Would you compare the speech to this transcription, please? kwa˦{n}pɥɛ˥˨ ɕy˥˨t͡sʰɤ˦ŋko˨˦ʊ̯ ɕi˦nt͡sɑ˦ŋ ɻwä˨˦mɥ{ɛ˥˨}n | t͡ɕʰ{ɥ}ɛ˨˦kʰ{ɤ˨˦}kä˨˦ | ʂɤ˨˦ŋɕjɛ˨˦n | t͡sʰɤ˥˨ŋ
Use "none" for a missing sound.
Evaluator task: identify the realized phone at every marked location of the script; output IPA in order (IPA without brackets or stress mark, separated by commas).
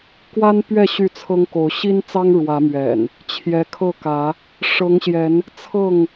n, ɛ̰˨˩, j, ɤ˥˨